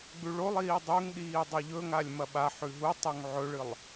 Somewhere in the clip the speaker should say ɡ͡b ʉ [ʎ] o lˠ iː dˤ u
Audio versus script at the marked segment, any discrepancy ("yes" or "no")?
yes